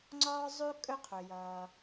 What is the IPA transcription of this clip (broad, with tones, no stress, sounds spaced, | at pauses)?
ŋ͡ǀ ɒː˥ zˤ ʉ˥ kʼ ɵ˥ qʰ ɵ˩ j ʌː˩